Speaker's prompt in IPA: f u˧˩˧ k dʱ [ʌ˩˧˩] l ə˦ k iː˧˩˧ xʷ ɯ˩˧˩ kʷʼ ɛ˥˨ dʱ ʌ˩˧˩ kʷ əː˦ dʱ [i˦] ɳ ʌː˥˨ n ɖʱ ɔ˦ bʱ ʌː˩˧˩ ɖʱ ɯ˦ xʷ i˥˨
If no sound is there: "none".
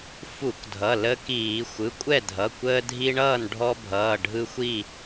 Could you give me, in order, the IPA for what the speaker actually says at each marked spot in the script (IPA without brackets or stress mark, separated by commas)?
ʌ˩˧˩, i˦